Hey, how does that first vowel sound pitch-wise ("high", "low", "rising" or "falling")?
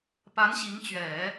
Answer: rising